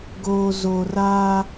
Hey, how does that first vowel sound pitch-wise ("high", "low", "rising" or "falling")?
low